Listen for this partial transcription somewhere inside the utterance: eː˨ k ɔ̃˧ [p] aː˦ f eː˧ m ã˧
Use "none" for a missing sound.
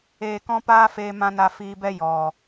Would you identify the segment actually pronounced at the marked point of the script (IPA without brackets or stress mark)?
p